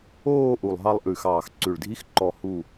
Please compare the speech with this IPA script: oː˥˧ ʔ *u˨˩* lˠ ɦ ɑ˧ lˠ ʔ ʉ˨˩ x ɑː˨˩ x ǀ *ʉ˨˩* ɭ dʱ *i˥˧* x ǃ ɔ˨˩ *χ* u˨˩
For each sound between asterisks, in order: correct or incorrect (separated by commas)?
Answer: correct, correct, incorrect, incorrect